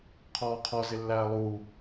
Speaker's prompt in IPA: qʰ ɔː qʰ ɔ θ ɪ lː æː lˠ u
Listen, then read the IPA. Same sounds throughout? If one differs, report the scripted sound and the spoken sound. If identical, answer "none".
θ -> z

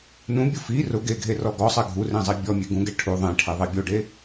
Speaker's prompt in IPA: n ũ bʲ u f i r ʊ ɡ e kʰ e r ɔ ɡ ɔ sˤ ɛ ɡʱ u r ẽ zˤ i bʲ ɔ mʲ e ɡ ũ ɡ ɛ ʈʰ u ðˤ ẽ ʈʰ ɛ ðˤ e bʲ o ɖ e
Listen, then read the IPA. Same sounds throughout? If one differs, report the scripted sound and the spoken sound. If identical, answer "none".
kʰ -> ɡʱ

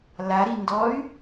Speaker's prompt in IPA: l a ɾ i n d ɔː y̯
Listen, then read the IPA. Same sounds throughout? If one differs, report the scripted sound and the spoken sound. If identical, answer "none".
none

